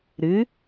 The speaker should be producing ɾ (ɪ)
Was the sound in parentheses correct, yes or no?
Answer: no